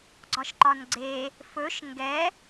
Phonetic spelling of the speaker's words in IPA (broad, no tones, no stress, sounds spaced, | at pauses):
ɡ͡ǀ ɒ ʃ ǃ ɒ n ɡ͡ǀ e | f ɵ ʃ ŋ ɡ ɛ